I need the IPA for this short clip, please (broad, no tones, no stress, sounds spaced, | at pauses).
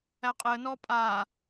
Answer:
æ qʼ e ə̯ n ɔː pʼ aː